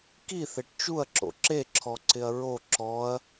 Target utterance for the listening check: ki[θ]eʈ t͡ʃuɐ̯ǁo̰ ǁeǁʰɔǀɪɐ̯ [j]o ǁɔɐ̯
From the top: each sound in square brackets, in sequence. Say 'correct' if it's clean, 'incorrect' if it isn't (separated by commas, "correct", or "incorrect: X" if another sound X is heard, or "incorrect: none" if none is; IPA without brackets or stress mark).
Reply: correct, incorrect: ɹ